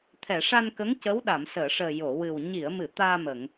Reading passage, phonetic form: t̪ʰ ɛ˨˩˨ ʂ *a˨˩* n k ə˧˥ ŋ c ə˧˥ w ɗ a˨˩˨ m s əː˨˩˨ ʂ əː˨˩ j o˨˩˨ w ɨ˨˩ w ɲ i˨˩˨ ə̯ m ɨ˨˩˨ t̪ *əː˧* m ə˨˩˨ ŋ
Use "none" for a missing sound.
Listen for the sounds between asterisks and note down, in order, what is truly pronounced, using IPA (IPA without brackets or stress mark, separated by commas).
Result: a˧, aː˧